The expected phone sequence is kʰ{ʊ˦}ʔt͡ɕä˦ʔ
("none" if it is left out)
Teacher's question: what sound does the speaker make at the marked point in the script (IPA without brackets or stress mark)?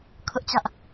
ʊ˦